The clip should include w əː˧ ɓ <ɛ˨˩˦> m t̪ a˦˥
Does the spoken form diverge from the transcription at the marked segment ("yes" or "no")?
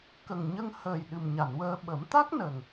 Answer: yes